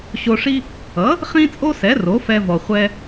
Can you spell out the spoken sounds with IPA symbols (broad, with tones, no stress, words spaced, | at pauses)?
ɕo˧ ʂi˥ | ʌ˩˥ | χĩ˥t͡sʼo˥sɛ˩˥ ro˩˥fɛ˧ vɔ˩χʷɛ˧